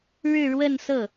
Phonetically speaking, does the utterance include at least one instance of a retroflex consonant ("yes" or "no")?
yes